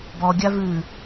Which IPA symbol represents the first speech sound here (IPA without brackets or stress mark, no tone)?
b